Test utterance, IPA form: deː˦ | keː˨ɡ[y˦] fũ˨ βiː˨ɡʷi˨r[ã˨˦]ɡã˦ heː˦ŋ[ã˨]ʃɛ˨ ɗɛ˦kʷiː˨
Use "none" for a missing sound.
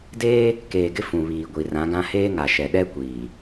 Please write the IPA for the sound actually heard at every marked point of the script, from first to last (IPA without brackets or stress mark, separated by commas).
ɪ˦, ã˨˦, a˨